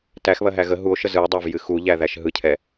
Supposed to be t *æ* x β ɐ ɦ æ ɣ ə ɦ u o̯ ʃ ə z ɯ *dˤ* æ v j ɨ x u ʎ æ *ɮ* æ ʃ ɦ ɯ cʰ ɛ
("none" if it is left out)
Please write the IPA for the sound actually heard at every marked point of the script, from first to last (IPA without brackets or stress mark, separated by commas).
æ, dˤ, ð